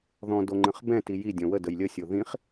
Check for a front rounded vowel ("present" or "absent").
absent